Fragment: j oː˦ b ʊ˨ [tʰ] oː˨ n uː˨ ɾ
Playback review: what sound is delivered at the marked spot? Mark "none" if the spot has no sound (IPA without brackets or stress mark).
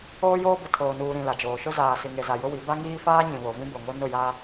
tʰ